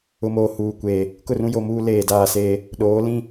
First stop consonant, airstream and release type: plain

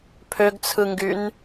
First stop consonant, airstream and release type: aspirated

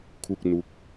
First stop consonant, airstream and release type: aspirated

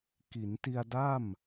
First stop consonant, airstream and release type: plain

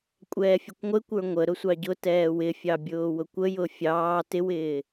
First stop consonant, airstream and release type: ejective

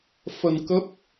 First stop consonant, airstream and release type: plain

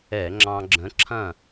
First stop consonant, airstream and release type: click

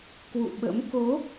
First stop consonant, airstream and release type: plain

